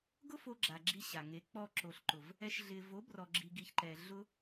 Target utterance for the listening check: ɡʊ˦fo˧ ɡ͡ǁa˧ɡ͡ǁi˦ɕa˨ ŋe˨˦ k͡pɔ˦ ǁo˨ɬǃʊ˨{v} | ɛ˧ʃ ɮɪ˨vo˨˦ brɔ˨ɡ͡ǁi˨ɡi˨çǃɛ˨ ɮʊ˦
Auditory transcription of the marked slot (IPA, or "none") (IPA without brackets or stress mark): v